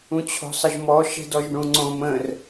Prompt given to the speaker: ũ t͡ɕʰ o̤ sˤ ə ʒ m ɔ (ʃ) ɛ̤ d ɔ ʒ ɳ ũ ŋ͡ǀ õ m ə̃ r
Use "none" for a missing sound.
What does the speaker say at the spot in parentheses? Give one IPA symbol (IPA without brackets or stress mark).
ʃ